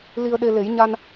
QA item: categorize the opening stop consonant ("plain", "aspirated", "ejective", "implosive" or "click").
implosive